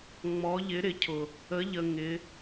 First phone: ŋ͡m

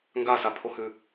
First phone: ŋ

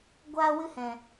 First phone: ɡʷ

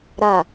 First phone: ɾ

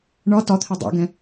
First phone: ɳ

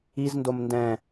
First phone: i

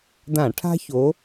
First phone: d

